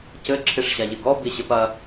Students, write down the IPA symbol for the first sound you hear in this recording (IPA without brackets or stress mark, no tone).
c